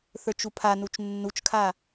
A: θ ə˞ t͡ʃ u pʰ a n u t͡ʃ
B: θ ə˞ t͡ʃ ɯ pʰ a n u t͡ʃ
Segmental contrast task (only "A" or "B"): A